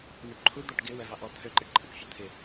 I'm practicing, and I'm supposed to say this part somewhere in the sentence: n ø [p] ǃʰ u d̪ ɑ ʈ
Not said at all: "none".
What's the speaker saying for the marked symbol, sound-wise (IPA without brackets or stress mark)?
p